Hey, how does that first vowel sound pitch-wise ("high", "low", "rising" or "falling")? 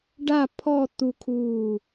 falling